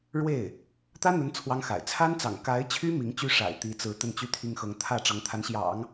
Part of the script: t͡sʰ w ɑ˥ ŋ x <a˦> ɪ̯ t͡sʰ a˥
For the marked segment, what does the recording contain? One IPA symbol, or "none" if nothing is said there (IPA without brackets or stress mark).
a̰˨˩